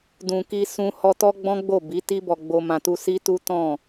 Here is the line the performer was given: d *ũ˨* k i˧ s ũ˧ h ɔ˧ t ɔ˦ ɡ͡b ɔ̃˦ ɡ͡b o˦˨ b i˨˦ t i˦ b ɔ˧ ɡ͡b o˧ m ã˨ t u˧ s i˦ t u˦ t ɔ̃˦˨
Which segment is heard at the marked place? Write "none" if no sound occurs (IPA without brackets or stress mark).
ũ˨